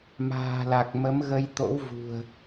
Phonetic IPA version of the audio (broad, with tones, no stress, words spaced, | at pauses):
ma̤ː˨˩la˨˩k̚ mə˨˦mɣə˧j t̪o̰˧˥wvṳ˨˩ə̯